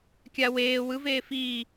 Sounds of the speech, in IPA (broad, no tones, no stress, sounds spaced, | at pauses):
kʲ a w eː w ɯ v eː f iː